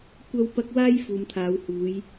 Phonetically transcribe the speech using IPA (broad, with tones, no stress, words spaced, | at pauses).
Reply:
kʷɐ˥wpɐ˥k̚ waː˥jfuː˨mt̪ʰaː˨˧whuː˨˧j